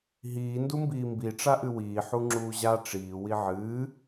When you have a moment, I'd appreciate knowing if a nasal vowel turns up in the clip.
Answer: no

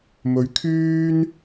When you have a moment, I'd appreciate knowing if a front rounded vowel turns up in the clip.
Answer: yes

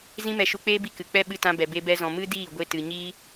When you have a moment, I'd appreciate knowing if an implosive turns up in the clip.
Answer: yes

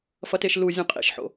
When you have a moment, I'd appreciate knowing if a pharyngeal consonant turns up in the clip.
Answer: yes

